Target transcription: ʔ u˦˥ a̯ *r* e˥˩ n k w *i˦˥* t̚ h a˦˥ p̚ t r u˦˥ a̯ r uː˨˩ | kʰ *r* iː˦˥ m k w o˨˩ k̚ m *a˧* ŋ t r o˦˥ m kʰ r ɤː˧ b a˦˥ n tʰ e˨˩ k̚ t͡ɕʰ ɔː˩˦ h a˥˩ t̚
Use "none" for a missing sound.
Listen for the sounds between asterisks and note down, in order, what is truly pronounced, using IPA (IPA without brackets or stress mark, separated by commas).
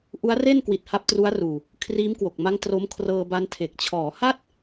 r, i˨˩, r, a˦˥